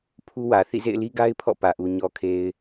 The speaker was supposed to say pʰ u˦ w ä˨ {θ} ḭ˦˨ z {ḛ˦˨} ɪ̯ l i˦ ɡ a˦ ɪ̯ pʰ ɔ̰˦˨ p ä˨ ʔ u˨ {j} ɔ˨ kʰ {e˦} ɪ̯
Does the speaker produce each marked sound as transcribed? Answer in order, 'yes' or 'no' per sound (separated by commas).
yes, yes, no, no